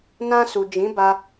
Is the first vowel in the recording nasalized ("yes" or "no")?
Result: yes